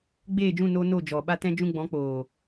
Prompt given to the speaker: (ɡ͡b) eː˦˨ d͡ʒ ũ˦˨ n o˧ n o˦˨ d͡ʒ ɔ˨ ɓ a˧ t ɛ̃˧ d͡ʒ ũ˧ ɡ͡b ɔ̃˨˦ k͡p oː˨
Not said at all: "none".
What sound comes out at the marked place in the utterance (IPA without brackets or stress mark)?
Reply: ɡ͡b